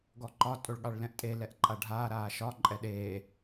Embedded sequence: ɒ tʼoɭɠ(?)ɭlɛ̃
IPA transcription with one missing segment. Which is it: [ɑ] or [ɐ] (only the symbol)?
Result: ɑ